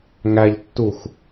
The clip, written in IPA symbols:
ŋæʎtːux

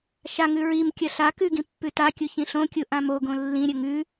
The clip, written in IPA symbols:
ʃaŋʉ ɹimkʲɐ ɬa kʉɡĩ pːʉtakʲu çĩɬõkʲu ʔãmoɡõ lːĩɾʲɵ ŋʉ

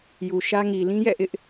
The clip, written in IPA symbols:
ju˨ʃä˦ŋi˨ lĩ˦jɛ̰˦˨ʔɪ˦ʔ

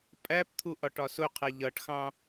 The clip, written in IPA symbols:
pʼæpt̪ʰu ʔɒʈɒsʊqʰɛ ʎʌʈxɑ̃

